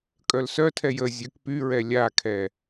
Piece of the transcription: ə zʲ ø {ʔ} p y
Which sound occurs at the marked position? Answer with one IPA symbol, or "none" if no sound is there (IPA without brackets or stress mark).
k